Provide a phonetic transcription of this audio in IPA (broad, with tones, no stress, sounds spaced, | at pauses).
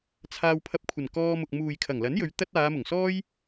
t͡sʰ aː˧ w pʰ ɐ˧ p̚ kʷʰ ɐ˨˩ n k ɔː˧ m ʊ˨ k̚ m uː˨ j kʰ ɐ˨˩ ŋ l ɐ˨˥ n j ɵ˨˧ ɥ t̪ ɐ˥ t̚ aː˨˧ m ʊ˨˩ ŋ s ɔː˥ j